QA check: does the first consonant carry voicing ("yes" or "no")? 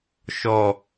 no